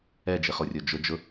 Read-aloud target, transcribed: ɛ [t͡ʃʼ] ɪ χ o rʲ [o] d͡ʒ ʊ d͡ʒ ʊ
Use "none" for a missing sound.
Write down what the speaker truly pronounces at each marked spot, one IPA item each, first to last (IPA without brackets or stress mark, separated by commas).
d͡ʒ, o